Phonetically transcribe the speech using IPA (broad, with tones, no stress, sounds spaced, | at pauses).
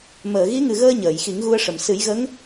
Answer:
m əː˨˩˨ ɣ i˧˥ ŋ ɨ˨˩ ɣ əː˧ ɲ əː˨˩˨ j x i˨˩˦ ŋ ɣ u˧ ə̯ ʂ ə˨˩ m s ɨ˨˩˦ j ɣ ə˧˥ ŋ